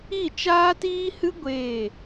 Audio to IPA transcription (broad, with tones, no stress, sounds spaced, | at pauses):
i˦˨ t͡ʃ aː˦ t iː˦ h ɨ˦ ɡʷ eː˦˨